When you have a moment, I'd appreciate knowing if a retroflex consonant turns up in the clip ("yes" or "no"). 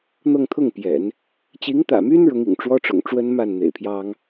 yes